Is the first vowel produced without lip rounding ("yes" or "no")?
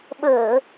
yes